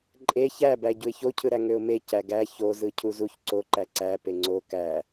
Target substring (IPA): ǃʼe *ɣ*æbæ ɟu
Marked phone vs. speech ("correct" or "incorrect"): incorrect